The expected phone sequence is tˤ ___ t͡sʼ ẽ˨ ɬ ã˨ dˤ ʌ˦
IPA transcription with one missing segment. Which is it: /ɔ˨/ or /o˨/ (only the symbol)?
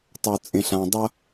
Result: o˨